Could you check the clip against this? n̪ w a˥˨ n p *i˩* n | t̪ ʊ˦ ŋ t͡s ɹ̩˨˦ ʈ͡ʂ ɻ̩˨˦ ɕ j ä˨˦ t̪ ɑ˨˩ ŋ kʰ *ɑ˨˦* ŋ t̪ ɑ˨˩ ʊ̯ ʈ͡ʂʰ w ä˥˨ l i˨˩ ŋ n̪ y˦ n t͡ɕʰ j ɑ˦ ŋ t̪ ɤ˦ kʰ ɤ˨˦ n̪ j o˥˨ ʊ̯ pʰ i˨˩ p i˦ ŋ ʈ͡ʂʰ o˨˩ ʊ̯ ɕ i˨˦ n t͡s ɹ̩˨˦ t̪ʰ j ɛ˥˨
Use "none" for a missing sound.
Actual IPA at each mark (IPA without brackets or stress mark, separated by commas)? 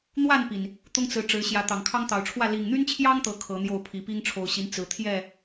i˩, ɑ˦